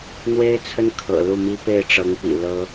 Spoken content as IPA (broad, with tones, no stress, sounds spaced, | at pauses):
n̪ w e˥ ɪ̯ t͡sʰ ə˥ n kʰ ɤ̰˨˩ l u˥˩ m i˥ p e˥˩ ɪ̯ ʈ͡ʂ ɤ˧˥ ŋ p ḭ˨˩ l ɤ˥